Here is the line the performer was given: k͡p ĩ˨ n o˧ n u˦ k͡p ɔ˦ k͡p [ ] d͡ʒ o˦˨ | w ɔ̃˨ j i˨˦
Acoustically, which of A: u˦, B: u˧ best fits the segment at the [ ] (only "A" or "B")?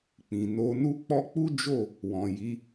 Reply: A